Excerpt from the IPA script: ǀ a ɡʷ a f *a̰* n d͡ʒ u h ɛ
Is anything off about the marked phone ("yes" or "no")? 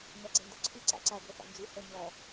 no